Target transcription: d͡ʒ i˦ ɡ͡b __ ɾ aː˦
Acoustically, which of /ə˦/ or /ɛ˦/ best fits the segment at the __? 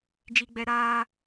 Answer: ɛ˦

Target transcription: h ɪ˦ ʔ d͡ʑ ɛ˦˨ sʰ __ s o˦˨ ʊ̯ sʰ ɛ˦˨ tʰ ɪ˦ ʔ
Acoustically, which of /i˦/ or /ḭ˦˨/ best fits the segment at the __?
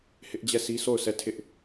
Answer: i˦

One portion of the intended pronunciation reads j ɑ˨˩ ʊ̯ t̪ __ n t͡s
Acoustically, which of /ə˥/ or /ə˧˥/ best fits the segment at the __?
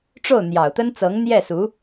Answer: ə˥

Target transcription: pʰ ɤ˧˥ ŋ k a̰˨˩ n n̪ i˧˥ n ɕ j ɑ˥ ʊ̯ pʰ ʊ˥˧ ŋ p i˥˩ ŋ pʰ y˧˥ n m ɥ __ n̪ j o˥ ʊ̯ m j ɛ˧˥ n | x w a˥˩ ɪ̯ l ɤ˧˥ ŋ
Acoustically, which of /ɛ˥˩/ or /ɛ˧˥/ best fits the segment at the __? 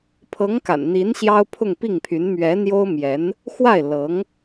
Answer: ɛ˧˥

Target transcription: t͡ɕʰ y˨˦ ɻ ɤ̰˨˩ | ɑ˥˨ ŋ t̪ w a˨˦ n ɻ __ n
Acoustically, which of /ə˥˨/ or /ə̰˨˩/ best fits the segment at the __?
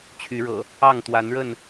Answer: ə˥˨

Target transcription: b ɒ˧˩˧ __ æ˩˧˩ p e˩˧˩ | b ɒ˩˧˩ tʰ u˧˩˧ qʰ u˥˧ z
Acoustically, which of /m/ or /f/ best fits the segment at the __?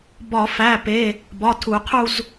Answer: f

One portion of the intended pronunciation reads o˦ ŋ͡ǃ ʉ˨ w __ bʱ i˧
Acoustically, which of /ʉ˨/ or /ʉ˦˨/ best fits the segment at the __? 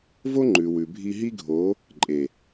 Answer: ʉ˨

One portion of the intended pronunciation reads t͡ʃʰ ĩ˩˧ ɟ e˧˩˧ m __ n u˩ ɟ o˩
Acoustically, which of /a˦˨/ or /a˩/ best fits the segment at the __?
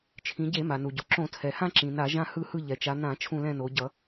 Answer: a˩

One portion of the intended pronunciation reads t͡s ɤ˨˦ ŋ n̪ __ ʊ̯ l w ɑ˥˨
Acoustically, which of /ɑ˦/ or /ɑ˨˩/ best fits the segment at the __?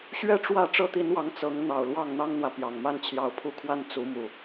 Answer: ɑ˨˩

